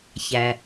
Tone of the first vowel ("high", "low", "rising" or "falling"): low